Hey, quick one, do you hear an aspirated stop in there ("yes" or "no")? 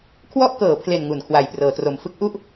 yes